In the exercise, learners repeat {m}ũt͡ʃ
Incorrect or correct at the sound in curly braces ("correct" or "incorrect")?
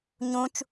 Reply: incorrect